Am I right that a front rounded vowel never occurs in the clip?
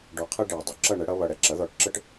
yes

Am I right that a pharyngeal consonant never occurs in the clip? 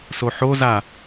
no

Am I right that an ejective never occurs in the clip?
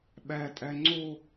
no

